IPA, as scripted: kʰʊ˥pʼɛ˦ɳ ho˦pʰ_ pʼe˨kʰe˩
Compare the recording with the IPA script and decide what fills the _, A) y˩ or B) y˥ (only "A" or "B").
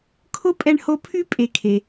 B